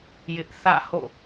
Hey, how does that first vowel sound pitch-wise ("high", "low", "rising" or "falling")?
high